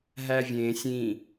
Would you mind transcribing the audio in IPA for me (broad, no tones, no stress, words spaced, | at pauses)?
ɦævʲẽːsʲ ĩ